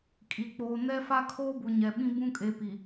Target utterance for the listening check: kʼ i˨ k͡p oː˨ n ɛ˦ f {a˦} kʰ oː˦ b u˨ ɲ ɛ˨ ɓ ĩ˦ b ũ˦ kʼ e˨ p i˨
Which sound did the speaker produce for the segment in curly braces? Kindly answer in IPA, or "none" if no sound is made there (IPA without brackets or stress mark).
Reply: a˦